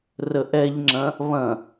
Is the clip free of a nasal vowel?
no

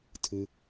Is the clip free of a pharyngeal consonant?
yes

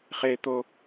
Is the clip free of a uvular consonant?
no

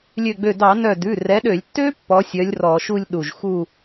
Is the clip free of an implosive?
no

